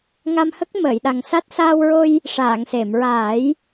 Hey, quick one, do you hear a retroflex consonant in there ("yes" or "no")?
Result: yes